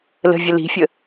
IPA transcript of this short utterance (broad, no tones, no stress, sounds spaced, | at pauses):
l ə̤ vʲ ə l i̤ fʲ ə